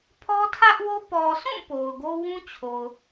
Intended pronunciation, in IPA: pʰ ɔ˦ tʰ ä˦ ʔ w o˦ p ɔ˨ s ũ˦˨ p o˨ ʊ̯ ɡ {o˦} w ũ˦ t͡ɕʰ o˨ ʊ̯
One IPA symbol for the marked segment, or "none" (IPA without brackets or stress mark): o˦